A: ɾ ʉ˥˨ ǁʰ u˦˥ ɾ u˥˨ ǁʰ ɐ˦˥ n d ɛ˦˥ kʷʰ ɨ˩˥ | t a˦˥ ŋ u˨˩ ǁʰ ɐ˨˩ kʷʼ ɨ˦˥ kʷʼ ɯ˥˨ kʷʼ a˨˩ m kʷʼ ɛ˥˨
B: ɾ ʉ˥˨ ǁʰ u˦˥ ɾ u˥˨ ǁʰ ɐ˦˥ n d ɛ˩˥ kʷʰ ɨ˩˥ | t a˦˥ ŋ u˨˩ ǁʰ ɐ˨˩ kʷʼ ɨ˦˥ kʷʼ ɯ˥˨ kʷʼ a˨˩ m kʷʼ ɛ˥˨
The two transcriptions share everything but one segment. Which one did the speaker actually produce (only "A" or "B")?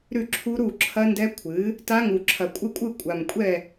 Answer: A